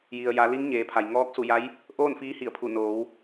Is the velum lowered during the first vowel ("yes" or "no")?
no